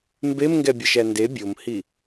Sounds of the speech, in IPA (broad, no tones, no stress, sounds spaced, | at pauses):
m b e m ŋ ɡ ɛ bʲ ɛ ʃ æ n d e bʲ o m h i